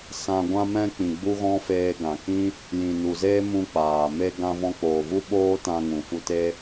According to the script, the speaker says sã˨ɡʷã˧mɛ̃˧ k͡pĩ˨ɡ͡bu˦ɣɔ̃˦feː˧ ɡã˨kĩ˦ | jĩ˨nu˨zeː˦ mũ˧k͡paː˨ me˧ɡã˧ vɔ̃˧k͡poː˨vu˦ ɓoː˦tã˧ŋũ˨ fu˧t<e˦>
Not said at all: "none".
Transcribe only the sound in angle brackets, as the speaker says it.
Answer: e˦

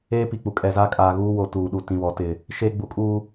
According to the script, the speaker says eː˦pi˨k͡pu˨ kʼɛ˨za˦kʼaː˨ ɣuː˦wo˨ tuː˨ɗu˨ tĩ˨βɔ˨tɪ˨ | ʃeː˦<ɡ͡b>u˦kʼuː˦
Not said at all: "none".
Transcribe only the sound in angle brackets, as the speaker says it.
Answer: ɡ͡b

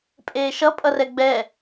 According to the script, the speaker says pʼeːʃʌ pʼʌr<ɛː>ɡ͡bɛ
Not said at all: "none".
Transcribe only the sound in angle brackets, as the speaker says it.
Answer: ɛ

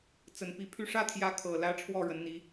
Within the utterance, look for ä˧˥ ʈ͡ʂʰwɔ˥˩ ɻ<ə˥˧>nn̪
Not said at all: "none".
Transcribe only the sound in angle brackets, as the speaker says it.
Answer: ə˧˥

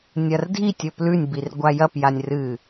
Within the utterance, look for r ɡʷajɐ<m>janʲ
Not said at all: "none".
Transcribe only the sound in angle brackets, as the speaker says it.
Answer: p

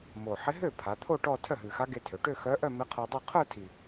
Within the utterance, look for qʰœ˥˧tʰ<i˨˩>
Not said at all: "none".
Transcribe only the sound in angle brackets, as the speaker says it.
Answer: i˨˩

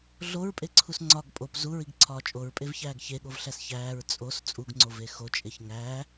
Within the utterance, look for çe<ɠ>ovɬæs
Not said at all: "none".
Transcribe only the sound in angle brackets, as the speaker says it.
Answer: ɠ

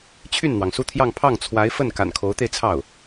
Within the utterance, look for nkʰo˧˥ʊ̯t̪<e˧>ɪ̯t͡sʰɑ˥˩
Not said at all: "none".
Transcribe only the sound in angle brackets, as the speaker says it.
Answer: e˧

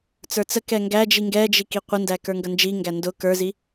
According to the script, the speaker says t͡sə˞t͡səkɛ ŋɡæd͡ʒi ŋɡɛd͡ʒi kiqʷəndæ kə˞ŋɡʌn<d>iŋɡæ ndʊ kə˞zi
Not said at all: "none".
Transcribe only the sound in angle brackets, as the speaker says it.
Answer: d͡ʒ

